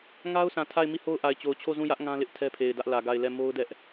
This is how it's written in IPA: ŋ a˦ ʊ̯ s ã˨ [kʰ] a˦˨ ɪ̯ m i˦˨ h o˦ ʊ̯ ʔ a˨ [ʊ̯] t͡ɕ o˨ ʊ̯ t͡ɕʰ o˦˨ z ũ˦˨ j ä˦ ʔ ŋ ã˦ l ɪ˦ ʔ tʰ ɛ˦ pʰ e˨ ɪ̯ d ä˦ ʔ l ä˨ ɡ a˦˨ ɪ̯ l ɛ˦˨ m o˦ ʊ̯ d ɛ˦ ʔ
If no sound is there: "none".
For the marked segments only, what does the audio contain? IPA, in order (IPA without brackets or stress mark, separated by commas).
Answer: tʰ, ɪ̯